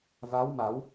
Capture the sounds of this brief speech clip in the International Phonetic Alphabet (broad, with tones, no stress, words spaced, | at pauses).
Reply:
va˧˥wma˨˩˦w